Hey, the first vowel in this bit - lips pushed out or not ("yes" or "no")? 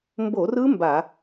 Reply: yes